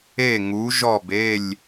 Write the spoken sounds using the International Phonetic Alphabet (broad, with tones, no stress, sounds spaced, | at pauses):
e˥˨ ŋ u˨˥ ʒ ɔ˥˨ b e˥˨ lʲ